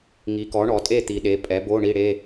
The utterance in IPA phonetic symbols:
ŋ i˩˥ k ɔ˩˥ ɳ ɔ˩˧ tʼ e˥˩ t̪ i˩˧ ɗ e˩˧˩ pʼ ɛ˩˥ b o˧˥˧ ɳ i˧˥˧ ɽ e˧˥˧

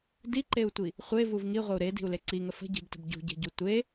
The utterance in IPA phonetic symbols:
d i ǃ e u̯ tʷ i | χʷ e v u v ŋ i ʁʷ ə u̯ ɾ e d i̤ u̯ l e ǀ i ŋ ə f ə̤ ɟ i̤ b t ə̤ b ɟ ṳ ɟ e̤ ɟ u tʷ e

